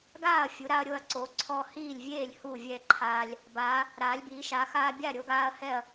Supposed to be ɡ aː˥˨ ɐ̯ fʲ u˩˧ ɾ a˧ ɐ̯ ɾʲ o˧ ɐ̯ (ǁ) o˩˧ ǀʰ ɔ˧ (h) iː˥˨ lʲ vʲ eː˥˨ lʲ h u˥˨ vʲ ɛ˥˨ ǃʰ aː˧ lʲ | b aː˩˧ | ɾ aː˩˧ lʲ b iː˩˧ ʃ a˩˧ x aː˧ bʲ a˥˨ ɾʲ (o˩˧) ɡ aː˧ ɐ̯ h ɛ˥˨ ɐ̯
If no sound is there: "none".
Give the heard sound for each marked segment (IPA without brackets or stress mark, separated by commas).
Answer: ǀ, h, o˧